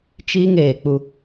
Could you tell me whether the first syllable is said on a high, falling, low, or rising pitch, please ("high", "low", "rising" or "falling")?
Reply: high